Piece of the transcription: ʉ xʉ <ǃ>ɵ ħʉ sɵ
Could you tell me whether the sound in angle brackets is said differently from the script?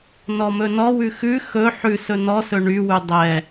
yes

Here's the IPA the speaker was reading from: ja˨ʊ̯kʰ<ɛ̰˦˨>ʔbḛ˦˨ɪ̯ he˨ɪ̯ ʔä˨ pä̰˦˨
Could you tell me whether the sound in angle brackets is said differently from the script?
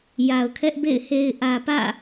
yes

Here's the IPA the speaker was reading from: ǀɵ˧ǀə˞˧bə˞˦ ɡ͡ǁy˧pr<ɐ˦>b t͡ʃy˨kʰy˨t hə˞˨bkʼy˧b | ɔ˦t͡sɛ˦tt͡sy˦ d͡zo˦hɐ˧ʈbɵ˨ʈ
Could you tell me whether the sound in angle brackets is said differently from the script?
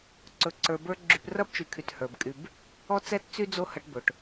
no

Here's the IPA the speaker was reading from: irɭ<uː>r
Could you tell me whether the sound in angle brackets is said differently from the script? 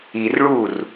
no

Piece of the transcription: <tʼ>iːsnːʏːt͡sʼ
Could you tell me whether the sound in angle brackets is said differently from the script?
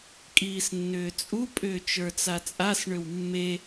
yes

